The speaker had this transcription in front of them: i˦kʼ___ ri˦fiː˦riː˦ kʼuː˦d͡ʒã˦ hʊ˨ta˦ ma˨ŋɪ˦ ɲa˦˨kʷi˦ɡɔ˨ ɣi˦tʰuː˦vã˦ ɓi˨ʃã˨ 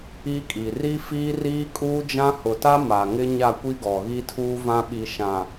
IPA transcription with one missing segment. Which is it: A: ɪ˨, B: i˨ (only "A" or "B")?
B